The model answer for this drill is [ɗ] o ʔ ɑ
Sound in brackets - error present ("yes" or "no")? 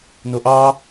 yes